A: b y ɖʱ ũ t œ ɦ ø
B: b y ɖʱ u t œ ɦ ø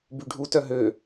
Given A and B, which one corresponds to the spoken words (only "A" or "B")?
B